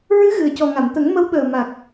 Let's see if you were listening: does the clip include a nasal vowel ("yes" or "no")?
no